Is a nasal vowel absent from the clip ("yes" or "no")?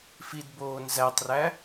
yes